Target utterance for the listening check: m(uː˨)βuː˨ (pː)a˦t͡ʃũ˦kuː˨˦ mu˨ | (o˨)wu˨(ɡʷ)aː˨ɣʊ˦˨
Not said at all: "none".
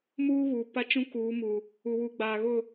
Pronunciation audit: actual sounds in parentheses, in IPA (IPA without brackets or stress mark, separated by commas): uː˦, p, u˨, ɡ͡b